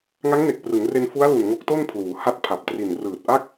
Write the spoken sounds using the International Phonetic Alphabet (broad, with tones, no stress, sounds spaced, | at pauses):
ŋ a˦˥ ŋ n e˨˩ k̚ p r ɯ˩˦ ŋ r e˧ n f u˦˥ a̯ l u˨˩ n ŋ o˦˥ k̚ t o˥˩ n pʰ l uː˩˦ h a˦˥ t̚ pʰ a˨˩ p̚ t r i˨˩ n r ɯː˨˩ t̚ ʔ a˥˩ k̚